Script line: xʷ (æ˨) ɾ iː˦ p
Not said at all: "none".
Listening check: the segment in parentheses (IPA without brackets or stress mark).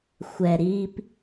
ɛ˨